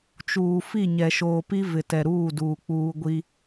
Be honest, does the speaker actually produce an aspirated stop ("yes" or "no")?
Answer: no